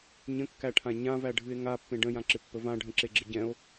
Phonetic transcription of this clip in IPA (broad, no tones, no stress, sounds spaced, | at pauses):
ɲ ə̃ kː æ ʈʰ ã ɲ ã v æ ɖʱ ɨ e̯ ŋ a pː ẽ ɖ ə̃ j ã ǁ ɪ pː ə v ã ɖʱ ə̃ ǁ e ɡ͡ǁ ɪ ɟ ɛ̃ o̯